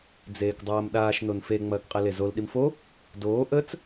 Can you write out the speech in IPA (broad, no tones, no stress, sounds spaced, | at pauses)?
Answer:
d͡z eː k dˤ ɐː m ɗ aː ʃ n o n f e ŋ͡m ɐː k qʼ e l e z o l ɗ i m f o | d oː ʔ ə t͡s